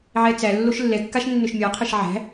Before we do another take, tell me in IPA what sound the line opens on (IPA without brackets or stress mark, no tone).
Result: ʕ